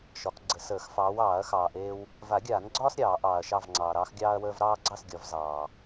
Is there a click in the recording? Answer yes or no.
yes